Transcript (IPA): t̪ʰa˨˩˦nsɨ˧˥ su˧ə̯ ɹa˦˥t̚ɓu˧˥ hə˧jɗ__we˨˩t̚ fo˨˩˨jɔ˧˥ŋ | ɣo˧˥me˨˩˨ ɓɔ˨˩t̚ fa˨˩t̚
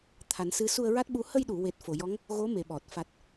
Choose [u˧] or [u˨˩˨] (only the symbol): u˨˩˨